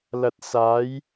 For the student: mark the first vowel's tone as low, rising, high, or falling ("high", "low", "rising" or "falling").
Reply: low